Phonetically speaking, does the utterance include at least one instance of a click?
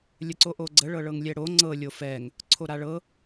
yes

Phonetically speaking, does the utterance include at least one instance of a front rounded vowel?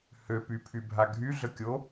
yes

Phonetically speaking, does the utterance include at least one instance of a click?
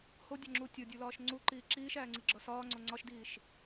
yes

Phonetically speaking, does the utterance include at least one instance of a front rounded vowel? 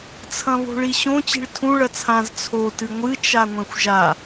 no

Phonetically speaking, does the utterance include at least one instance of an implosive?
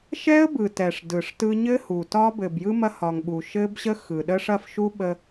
yes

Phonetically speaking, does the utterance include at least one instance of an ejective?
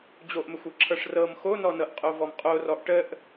yes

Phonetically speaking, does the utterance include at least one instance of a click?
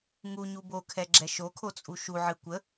yes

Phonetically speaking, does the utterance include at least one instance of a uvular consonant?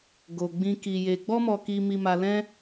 no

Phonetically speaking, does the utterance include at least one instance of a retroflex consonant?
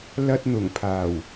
no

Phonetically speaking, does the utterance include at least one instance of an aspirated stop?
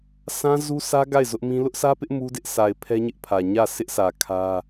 yes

